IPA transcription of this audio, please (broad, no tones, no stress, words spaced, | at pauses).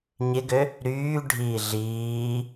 ɲɪɡø | ɾyː ɖʱiːɮiː